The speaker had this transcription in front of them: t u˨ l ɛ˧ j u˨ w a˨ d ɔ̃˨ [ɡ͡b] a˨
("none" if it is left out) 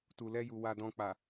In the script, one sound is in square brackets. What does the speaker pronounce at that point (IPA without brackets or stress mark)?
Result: k͡p